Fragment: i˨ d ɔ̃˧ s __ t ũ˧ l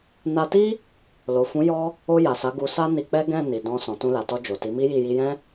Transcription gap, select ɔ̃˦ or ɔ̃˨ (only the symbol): ɔ̃˨